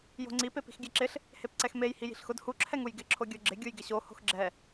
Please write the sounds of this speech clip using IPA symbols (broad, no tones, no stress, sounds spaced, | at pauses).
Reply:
j o̤ ŋ͡ǀ i p e p i̤ x ɡʲ ɛ ǁ ɪ ɬ | h e p ǀ ɛ x m e j h i j i̤ ɬ x ʊ d h u ǁʰ ɛ ŋ u j ɡ ɪ ǁʰ o ɡʲ o ɡ͡ǁ ɪ ɡʲ u j ɡ ɪ ɕ o h o̤ x ɡ͡ǁ ɛ